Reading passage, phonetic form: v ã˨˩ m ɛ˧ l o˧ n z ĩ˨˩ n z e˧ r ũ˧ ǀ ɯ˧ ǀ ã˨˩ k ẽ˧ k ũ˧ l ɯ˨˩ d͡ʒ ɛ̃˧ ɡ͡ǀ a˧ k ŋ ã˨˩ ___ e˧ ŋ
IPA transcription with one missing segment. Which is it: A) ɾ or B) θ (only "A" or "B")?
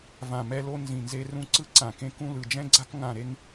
A